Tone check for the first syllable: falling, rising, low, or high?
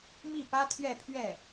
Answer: falling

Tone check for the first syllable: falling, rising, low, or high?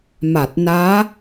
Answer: low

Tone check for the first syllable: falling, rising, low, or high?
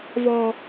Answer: high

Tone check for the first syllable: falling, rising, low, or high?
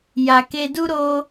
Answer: low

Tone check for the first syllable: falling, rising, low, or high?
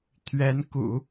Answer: rising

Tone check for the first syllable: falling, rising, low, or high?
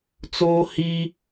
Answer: high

